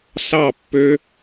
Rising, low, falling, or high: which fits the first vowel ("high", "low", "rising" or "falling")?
falling